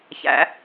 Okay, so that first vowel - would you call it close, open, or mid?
open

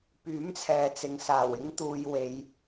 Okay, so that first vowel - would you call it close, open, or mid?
close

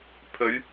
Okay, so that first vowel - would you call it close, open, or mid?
mid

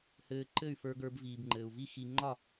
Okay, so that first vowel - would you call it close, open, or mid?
mid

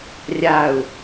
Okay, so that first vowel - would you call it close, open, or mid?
open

